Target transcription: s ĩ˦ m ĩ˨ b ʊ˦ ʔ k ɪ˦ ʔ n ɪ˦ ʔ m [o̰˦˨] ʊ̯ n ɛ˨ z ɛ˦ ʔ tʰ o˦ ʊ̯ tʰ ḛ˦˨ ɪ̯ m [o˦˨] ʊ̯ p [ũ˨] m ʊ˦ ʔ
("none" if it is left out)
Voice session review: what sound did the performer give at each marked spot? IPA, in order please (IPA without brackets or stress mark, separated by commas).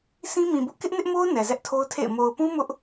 o˦, o˨, ũ˦